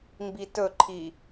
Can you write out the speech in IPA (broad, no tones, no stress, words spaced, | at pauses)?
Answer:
mbitɵǃʰi